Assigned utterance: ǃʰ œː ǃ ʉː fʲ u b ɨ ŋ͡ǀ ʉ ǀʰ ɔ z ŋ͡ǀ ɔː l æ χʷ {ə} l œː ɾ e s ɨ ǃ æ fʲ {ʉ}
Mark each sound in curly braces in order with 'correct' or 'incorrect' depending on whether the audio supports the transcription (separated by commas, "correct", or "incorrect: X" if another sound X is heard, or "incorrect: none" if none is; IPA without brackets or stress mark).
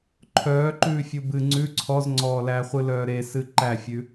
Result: incorrect: ɨ, correct